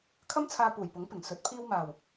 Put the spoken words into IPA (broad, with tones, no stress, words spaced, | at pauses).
kʰɐ˥mt͡sʰaː˧ puː˨˩jpʊ˨˥ŋ pɪ˨˩ŋsɵ˨˥t̚ pʰiː˧wmaː˨˩w